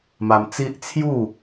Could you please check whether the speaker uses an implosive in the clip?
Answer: no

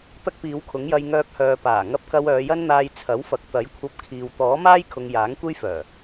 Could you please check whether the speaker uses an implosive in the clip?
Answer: no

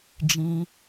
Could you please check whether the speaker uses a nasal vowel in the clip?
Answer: yes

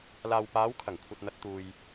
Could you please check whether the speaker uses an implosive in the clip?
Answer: no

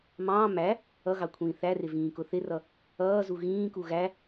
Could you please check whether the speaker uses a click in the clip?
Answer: no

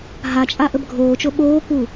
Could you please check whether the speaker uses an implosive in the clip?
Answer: yes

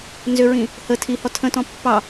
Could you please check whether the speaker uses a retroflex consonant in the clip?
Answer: no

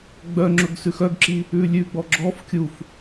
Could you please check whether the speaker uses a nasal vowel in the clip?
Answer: no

